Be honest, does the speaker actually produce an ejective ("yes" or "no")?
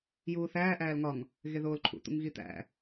no